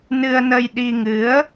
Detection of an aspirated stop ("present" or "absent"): absent